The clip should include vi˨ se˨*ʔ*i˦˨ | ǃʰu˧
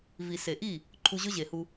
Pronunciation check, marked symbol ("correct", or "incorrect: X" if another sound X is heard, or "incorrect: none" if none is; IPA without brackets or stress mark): correct